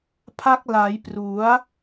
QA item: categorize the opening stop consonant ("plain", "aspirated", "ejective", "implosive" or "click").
aspirated